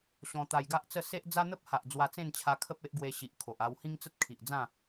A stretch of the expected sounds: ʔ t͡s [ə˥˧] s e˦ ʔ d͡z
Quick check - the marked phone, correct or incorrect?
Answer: correct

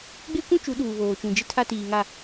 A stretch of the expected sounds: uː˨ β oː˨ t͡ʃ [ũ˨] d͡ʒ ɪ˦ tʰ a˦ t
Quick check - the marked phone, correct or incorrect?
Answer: correct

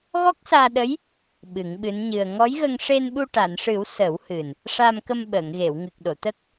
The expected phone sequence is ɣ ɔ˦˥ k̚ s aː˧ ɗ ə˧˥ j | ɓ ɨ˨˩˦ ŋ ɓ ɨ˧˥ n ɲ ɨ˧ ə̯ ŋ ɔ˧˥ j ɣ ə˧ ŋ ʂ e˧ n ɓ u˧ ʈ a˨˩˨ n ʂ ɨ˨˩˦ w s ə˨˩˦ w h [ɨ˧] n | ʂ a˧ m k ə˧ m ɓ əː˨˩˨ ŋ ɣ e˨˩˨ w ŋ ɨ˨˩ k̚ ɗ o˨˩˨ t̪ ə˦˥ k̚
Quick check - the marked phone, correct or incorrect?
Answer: incorrect: ɨ˨˩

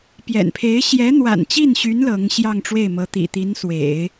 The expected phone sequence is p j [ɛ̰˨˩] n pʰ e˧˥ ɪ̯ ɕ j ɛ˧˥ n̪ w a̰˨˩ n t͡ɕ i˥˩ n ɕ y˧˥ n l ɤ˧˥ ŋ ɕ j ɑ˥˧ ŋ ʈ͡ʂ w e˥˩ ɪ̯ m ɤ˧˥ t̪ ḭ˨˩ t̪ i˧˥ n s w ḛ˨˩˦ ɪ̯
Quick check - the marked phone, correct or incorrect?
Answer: correct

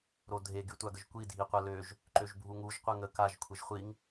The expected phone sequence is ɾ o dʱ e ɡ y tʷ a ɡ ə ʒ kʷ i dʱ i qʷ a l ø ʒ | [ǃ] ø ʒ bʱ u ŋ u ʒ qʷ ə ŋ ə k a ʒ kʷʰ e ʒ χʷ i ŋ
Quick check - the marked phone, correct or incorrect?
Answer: correct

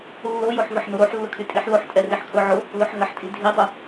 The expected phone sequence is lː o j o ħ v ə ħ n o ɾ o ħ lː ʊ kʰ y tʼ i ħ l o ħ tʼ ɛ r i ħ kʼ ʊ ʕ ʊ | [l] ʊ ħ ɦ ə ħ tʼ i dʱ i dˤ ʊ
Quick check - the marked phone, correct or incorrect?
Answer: correct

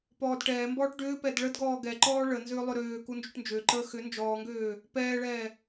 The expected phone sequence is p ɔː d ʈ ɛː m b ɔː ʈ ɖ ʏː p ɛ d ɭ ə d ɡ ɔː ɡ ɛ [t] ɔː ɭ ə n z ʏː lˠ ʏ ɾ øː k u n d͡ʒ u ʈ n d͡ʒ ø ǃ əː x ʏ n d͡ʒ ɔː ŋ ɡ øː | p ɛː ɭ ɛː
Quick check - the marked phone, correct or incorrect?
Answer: incorrect: ǃ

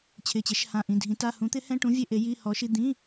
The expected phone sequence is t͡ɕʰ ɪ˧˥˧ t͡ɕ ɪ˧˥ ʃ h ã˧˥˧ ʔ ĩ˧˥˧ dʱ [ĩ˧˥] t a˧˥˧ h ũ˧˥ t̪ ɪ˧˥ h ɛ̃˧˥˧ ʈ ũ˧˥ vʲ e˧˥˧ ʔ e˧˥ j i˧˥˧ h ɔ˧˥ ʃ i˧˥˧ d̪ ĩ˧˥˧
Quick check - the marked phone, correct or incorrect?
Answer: correct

